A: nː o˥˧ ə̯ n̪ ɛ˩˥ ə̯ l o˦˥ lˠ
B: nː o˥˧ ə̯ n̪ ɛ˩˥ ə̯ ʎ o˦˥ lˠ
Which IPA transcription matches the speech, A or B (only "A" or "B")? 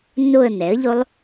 B